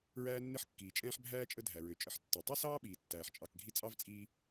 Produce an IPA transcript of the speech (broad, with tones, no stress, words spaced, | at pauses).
ɹæː˦nːɪ˦ħkːiː˩t͡ʃʼɛ̃ː˦ħ bʱæː˥t͡ʃʼə˦ dʱæ˩ɹø˩t͡ʃʼə˨ħtːɛ˩ tˤu˥sɑː˥ɓiː˩tːæː˩ħ t͡ʃʼɑ˨k ɡʱi˦t͡sʼɑ˥vt͡sʼiː˦